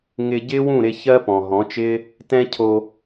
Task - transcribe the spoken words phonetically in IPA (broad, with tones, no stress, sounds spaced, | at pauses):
ŋ ɪ˧ ɟ ɪː˦ w ũ˦˨ ɾ ɪ˧ ç ɜ˦ p ɔ̃˨ ɦ ɔ̃˨˦ t͡ʃ ɪː˦ | t ɛ̃˦ cʰ o˧